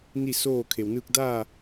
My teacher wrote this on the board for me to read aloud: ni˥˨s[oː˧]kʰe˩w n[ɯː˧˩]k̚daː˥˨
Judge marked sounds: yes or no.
no, no

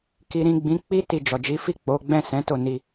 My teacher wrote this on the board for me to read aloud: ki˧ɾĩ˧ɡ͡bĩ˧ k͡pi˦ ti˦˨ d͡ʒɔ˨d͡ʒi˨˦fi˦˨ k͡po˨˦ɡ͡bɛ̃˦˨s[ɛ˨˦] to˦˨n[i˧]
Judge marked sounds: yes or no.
no, yes

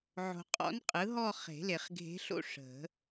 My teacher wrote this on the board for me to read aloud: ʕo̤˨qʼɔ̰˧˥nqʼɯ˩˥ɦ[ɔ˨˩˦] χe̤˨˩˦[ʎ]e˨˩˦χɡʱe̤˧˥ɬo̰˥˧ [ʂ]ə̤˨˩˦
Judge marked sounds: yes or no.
no, no, yes

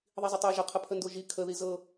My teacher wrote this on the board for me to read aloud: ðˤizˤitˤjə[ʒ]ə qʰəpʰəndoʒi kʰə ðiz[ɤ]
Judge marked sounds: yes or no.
yes, yes

